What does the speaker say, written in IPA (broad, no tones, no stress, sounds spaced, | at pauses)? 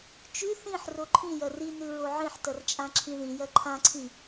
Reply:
t͡ʃ ʉ θ ĩ ħ r o ǃʰ ĩ j ɐ r i n ʉ ɹ o ʕ ĩ ħ t ɐ r t͡ʃʼ ã ǁʰ ĩ ð ĩ j ɐ ǃʰ ã ǀʰ ĩ